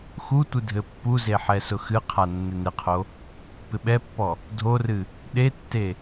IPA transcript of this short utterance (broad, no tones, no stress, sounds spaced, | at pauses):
x u tʷ ɨ dʱ ɘ pː u z e ħ ɛ s ʊ x ɨ qʰ a nː ɪ n ɪ qʰ o | p ɪ ɓ ɛ pː ɔ | dʱ o r ɨ | ɗ e tː e